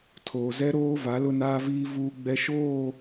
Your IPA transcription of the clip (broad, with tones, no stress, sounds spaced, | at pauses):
tʰ oː˨ z ɛ˦ ɾ oː˦ v a˨˦ l ʊ˦ n aː˦ v iː˦ v uː˦ ɡ͡b ɛ˦ ʃ oː˦˨